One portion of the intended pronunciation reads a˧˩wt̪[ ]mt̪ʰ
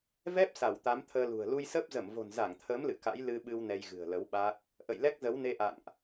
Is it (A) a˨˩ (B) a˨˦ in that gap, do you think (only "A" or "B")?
B